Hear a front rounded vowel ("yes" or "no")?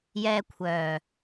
yes